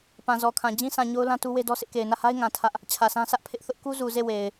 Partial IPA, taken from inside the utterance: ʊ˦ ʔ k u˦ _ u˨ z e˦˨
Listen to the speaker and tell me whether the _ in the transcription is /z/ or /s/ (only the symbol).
z